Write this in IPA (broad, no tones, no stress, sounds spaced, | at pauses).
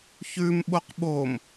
ç ʉ m ɓ o q ɓ o m